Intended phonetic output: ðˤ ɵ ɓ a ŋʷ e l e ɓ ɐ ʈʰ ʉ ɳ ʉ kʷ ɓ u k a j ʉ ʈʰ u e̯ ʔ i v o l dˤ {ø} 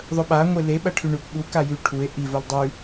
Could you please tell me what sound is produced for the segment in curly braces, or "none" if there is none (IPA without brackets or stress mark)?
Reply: ʉ